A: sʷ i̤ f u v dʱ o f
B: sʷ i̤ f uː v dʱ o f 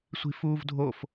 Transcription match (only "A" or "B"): B